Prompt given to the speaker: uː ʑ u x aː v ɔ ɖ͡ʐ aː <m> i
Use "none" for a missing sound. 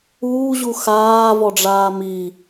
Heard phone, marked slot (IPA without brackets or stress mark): m